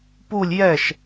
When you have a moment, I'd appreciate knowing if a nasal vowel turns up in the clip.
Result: no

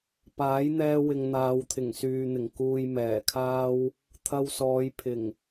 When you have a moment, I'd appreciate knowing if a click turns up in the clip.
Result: no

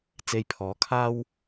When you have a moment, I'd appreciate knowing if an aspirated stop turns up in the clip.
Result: yes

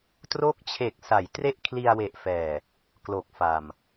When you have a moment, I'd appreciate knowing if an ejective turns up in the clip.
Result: no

